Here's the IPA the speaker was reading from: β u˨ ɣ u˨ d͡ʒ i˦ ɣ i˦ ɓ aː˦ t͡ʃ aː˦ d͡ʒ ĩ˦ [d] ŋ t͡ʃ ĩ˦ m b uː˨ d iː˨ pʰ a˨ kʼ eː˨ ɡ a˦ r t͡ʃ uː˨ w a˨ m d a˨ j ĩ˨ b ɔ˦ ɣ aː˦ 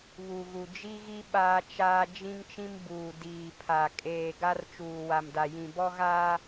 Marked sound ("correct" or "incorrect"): incorrect